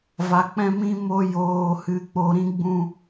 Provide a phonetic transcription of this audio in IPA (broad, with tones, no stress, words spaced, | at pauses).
va˨ k͡pɛ̃˧mĩ˧ mo˧ joː˨hɨ˨ k͡po˨ɾĩ˧ɡ͡bũ˧